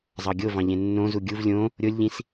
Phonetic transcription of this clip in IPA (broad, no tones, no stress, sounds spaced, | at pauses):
zˤ ɑ ɡʲ o v ɑ̃ ʎ ẽ nː õ z u ɡʲ u v lʲ õ | ɾʲ o lʲ ʎ ĩ s